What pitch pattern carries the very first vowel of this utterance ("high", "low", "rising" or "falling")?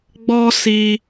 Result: high